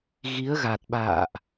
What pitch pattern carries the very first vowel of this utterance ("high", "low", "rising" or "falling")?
rising